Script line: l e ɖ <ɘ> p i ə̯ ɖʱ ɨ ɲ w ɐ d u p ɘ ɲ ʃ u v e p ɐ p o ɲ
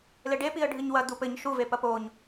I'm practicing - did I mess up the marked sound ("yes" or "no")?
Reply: yes